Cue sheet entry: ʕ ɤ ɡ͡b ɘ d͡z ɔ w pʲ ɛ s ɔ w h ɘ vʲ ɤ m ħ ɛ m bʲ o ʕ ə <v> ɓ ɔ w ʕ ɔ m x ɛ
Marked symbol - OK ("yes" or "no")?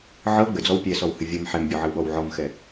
no